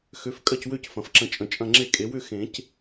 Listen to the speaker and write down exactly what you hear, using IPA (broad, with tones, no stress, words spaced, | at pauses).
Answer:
xø˩˥fkʼɐ˥˩cwø˥˩c fɐ̃˩fǁə̃˨˩˦ t͡ʃʼə̃˩t͡ʃʼɐ̃˥˩ ŋ͡ǁe˥˩kʼe˩˥ wʏ˥˩xẽ˨˩˦c